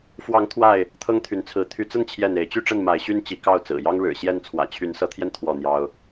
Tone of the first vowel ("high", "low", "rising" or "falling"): rising